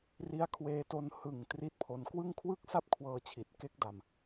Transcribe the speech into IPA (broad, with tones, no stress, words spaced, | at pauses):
ri˦˥a̯kʰweː˧to˧n hɯ˨˩ŋ tri˦˥t̚pʰo˧n kwɯ˥˩ŋ kʰwɯ˥˩k̚sa˥˩p̚kʰwɤː˧t͡ɕʰi˨˩t̚ ke˦˥k̚da˧m